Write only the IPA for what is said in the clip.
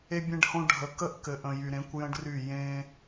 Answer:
e˧ bʲ ẽ˧ ɖ h õ˧ ɖʱ ə˨ k ə˦ ʔ k ɘ˨ ʔ ə̃˨ j y˨ ɾ ẽ˨˦ kʷ j ə̃˦ ɖ r y˦˨ j ẽ˧

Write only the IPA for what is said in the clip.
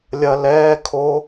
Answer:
lʲ ɐ˧ l ɛː˧˥˧ kʰ o˦˥

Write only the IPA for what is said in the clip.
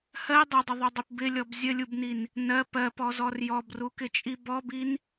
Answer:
h ɜ dˤ ʌ dˤ ə ðˤ u dˤ i p b ɪ lʲ ɔ b zʲ ə lʲ u b n i n | n ɜ p ɜ p ɔ z ɔ r j ɔ b r u k ɪ t͡ʃʼ i b ɔ b i n

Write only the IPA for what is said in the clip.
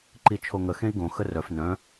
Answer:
ǃ i t͡ʃʰ o ŋ ə x ẽ i̯ ɡ õ x ə r œ f n œ̃

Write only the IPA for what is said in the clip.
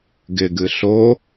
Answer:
ɡ ɪ ɡ ɨ ɬ o

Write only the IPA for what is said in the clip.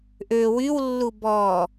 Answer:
ʔ ø w y w lː u b ɔ

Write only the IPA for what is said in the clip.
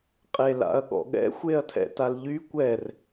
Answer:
qʼ e l a̰ ɐ̯ ɠ ɔ̰ ɠ ɛ̰ xʷ e ɐ̯ tʰ ɛ̰ t a l ʎ y kʷ ɛ r

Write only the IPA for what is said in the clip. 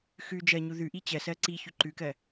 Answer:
x ʉ d͡ʒ ɜ ɲ u ð ʉ ʔ i t͡ɕ ɜ s ɜ ǀ i ç ʉ ǃ ʉ k ɜ

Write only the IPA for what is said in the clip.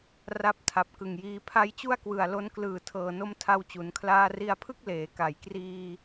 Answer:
r a˦˥ p̚ tʰ a˨˩ p̚ k ɯ˨˩ ŋ j iː˧ pʰ a˦˥ j t͡ɕ u˥˩ a̯ k w ɯ˨˩ a̯ l o˧ n k l ɯː˨˩ tʰ ɤː˨˩ n o˦˥ m tʰ a˧ w t͡ɕ u˩˦ n kʰ l aː˧ r i˧ a̯ pʰ ɯ˥˩ k̚ l eː˩˦ k a˩˦ j k r iː˧

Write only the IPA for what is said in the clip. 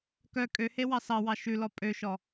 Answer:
k œ kʼ ø h e w ɑ s ɑ w ɑ ʃ ʉ l ɔ pʼ ø ʃ ɔ

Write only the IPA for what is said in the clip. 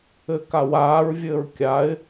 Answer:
ɘ k a w aː ɹ vʲ ɘː ɹ kʲ a ɪ̯

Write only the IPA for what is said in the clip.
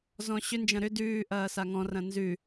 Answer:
z ɔ̃ ɕ ʏ n d͡ʒ ɐ̃ ɾ ʏ d ʉː ʔ ɐː s a ŋ ɔ̃ r ɐ̃ n z ʉ

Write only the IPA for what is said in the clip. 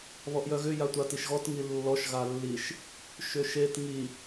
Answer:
β ɔ ʔ j œ ɣ ʏ j a tʷ a t i ʃ ɣ ɔ t ŋ i lː ɔ ʃ ɣ a lː i ʃ | ʃ ʏ ʃ e t ŋ i

